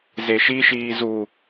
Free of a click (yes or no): yes